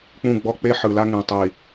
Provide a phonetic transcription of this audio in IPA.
k͡p ũ˦˨ ɡ͡b ɔ˦ k͡p e˦ ħ ɯ˨ l a˦ ŋ ẽ˨ tˤ i˨

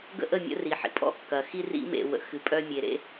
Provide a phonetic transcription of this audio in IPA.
ɡ ə̰˦ ʔ ə˦˨ mʲ ə̰˦ r i˨ ħ ḭ˨ pʼ ɔ̰˦ kː ɐ˨ x i˦ r ḭ˦ m ḛ˨ w ə̰˨ x ɨ˨ pʼ œ˦ mʲ e˨ ɾ ḛ˦

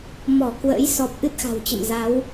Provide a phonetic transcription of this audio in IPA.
m ɔ˧˩ k w ə̰ː˧˥ j s ɔ˨˩ p̚ ʔ ɨ˦˥ t̚ x a̤˨˩ w t͡ɕ ə̰˧˨ m z a˨˦ w

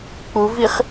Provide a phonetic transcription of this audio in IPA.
k͡p u v i χ

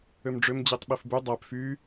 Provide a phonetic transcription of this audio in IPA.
ø m ɖ͡ʐ ø m d͡ʑ i tˤ ɓ i f b y dˤ æ p f y

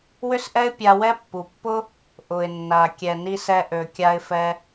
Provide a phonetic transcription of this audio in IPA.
w ʏ˥ s ʔ ɛ˥ ɪ̯ pʲ a˧ w ɛ˥ pː u˩ pː ʊ˥ | ʔ ʊ˩ ɪ̯ nː a˩ kʲ ɛ˩ n i˧ s ɛ˧ ʔ ø˩ kʲ a˧ ɪ̯ f ɛ˧

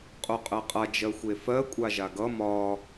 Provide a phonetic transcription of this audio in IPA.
qʼ o qʼ ɜ qʼ a d͡ʒ ɜ xʷ e f ɜ kʷʼ a ʒ a ɡ ʌ m ɒ

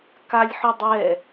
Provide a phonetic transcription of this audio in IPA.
k a lʲ ħ ʊ dˤ ɛ

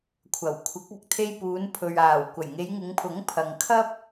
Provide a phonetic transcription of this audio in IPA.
kʷʰ ɐ˨˩ w kʷʰ ɪ˨˥ k̚ ɐ˨ k̚ t̪ʰ e˧ j p uː˨˧ n pʰ ɵ˨ ɥ aː˨˩ w kʷ ɐ˨˩ j ŋ e˨˧ j ŋ ɪ˨˧ ŋ pʰ ʊ˨˥ ŋ pʰ ɐ˨ ŋ kʰ ɐ˥ p̚

